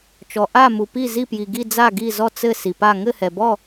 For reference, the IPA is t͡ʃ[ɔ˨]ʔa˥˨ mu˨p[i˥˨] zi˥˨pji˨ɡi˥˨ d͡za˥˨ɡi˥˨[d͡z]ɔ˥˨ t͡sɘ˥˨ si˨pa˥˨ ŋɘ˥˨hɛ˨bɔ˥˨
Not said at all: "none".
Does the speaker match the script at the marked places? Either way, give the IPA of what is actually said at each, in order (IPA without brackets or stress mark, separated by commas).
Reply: ɔ˨, i˥˨, z